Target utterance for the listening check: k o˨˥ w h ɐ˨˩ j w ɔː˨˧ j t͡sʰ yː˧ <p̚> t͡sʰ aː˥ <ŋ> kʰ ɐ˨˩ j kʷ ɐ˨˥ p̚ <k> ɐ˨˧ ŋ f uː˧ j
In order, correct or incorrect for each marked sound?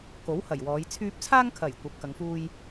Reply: correct, correct, correct

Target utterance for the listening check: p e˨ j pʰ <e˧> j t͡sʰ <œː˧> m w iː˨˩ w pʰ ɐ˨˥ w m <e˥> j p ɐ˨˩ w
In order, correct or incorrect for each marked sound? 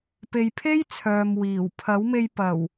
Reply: incorrect: e˥, incorrect: œː˨, incorrect: e˧

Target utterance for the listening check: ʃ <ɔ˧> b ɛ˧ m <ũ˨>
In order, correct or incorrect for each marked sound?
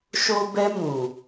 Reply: incorrect: o˧, correct

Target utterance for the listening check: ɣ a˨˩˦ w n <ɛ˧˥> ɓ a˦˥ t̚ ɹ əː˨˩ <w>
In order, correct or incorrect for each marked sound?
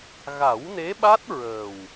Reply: incorrect: e˧˥, correct

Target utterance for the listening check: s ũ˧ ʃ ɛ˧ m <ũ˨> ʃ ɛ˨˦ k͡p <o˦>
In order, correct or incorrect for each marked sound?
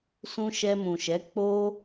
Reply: correct, correct

